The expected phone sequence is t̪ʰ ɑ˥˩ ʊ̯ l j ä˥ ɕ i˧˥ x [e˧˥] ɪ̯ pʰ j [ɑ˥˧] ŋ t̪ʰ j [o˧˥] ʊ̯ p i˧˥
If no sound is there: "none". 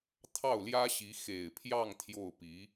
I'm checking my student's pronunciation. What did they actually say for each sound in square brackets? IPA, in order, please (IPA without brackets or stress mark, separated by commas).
e˨˩, ɑ˥˧, o˥˩